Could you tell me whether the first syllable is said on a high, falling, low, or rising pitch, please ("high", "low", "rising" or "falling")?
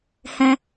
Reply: high